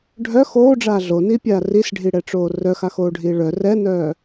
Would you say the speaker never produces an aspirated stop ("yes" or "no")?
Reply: yes